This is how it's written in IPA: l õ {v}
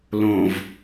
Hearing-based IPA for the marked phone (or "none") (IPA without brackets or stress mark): v